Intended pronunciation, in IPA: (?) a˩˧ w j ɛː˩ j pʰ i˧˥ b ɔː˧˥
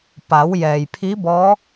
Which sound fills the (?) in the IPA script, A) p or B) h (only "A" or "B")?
A